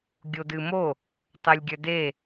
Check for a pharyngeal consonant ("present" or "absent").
absent